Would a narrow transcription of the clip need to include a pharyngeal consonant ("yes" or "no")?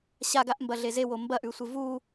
no